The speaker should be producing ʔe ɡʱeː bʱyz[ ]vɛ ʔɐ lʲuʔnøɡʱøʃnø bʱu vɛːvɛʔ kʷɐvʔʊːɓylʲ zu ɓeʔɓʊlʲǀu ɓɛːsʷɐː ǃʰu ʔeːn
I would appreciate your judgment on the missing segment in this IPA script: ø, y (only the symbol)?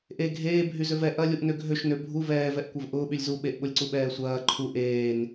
ø